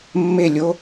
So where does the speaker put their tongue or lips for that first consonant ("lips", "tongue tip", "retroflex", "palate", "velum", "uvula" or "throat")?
lips